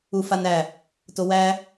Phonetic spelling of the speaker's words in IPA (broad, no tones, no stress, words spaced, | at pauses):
ufanæ | towæ